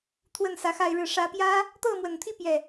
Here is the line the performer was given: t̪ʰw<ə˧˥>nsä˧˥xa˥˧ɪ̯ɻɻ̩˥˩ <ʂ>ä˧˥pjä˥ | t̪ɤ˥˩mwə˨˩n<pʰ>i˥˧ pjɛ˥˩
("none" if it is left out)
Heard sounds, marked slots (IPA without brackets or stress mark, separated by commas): ə˥˩, ʂ, t̪ʰ